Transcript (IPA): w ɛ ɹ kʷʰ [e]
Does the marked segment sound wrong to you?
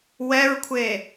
no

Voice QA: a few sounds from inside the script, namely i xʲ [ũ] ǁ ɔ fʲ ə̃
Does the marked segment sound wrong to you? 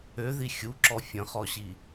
yes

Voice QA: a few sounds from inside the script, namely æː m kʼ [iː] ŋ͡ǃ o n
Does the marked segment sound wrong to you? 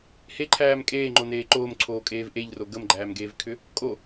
yes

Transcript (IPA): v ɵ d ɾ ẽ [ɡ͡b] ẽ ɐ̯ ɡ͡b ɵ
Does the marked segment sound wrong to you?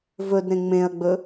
yes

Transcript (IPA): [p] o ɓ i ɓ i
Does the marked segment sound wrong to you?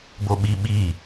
yes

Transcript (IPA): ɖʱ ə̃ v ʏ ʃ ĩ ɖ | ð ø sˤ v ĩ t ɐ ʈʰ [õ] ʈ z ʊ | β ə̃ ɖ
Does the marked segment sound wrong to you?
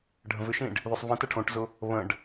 no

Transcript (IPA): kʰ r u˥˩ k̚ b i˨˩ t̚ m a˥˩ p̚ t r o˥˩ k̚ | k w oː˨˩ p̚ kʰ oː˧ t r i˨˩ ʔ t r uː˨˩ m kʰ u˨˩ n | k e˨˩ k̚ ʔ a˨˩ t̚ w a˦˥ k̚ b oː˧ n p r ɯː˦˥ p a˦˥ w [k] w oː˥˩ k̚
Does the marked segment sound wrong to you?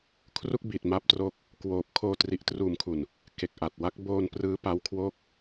yes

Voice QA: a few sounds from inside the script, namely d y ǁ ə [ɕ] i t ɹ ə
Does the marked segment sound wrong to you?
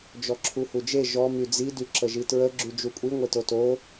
yes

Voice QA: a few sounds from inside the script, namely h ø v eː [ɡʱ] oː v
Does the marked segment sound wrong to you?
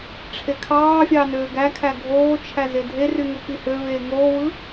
yes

